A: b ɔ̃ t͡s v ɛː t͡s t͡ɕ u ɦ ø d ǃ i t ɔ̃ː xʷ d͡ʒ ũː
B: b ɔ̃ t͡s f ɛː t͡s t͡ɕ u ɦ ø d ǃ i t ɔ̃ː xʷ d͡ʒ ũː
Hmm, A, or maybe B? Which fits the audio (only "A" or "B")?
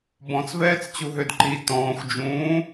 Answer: A